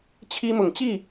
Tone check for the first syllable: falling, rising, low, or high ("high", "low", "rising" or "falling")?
high